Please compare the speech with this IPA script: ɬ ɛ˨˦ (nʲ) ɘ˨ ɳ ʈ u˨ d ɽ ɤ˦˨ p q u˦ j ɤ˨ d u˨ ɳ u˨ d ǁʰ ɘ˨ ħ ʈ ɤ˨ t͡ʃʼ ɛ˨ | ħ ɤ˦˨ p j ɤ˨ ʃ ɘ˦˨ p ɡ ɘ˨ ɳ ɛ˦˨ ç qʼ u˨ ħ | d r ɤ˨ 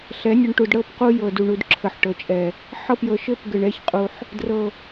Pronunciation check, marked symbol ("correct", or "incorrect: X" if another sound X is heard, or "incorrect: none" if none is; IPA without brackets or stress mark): correct